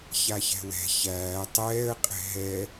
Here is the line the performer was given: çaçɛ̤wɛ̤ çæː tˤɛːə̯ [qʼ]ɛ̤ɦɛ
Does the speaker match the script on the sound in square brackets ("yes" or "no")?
yes